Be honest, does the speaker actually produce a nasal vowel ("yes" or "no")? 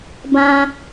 yes